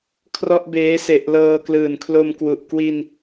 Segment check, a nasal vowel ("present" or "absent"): absent